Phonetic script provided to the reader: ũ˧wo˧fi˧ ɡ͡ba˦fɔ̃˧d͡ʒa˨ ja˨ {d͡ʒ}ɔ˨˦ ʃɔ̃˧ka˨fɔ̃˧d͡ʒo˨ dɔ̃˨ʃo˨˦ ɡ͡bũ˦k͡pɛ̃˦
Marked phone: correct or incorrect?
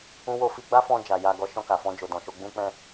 incorrect